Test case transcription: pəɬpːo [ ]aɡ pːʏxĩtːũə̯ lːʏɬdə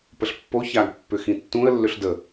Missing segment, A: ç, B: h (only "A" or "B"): A